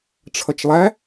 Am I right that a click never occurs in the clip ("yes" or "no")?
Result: yes